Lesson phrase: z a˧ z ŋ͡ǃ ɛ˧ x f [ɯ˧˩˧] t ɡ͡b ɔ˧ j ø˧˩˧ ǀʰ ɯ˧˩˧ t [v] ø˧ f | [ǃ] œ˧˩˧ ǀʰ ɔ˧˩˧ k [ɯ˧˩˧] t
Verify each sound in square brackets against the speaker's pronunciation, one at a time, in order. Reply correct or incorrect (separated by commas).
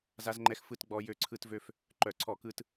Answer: correct, correct, correct, incorrect